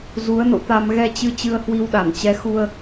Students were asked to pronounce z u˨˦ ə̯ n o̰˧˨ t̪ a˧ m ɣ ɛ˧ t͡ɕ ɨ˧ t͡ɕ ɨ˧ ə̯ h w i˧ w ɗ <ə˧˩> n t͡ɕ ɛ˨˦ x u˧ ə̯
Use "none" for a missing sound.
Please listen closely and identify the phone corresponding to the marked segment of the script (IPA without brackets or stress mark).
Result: a˧˩